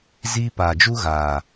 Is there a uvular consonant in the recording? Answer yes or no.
no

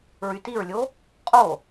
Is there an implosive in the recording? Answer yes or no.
no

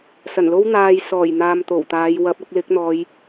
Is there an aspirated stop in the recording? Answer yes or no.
no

